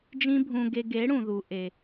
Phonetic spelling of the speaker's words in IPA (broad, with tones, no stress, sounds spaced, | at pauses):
d͡ʒ ĩ˦ bʱ ũ˧ ɡ e˧ ɡ e˨˦ ɽ ũ˨ ð u˨ ʔ e˨